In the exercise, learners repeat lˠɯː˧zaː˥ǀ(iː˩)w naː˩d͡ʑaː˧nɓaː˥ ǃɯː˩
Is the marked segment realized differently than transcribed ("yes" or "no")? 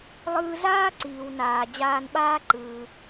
no